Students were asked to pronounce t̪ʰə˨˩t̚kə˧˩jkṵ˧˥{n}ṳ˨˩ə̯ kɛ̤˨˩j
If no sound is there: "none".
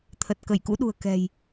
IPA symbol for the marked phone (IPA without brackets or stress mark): ɗ